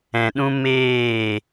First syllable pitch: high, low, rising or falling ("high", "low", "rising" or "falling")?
low